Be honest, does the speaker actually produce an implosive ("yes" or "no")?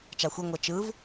no